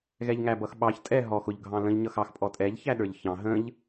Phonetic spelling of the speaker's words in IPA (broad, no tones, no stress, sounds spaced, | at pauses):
ɣ ɛ ʎ ŋ æ b ʌ x ɓ ɑ ç tʼ ɛ ɦ ɔ x ʊ ʎ ɡʱ ɑ̃ l ə̃ ʎ ɲ ʌ x ɑ x pʼ ɔ tʼ ɛ ʎ ç æ ɗ ə˞ ʎ ç ɑ̃ ɦ ə̃ ʎ